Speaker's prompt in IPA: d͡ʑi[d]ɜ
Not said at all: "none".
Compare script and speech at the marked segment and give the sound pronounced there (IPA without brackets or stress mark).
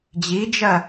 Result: d͡ʒ